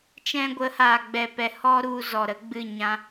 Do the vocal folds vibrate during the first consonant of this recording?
no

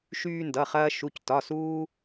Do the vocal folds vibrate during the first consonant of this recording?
no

